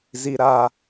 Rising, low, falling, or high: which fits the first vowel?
high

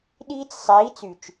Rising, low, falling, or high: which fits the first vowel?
high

